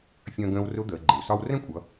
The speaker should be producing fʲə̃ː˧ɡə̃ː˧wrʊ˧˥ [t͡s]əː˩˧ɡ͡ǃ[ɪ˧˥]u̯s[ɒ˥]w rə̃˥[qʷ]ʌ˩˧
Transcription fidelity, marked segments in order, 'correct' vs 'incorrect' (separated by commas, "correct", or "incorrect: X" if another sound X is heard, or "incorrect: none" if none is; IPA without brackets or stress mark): incorrect: d̪, incorrect: ɪ˩, correct, incorrect: kʷʼ